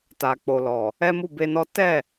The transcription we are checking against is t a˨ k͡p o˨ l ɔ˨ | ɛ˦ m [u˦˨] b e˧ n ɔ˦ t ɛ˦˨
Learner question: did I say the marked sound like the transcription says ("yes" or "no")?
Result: yes